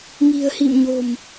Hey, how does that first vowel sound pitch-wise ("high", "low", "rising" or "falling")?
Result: low